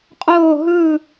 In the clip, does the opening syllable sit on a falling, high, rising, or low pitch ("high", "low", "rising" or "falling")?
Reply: falling